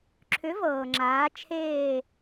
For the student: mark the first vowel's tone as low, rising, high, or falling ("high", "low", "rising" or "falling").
rising